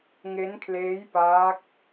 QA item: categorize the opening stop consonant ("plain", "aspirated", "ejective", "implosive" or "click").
aspirated